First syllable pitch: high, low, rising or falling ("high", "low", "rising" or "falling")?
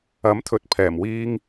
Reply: rising